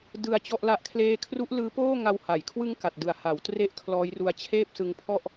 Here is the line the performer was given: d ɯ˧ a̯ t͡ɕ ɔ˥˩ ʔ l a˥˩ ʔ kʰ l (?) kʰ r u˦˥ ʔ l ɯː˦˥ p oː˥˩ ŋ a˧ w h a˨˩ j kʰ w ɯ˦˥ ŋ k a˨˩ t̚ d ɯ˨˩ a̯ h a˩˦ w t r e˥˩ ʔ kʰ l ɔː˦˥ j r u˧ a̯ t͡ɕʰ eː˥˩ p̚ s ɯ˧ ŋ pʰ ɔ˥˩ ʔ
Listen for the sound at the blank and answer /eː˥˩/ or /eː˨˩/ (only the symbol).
eː˥˩